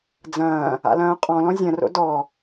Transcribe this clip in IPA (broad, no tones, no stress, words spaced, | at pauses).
d͡zɐ̃ː | a̰lɐ̃ːo̯qʼɔ̃lɔ̃ zʲɐ̃ro̰ dɔ